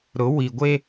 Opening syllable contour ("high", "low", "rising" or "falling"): rising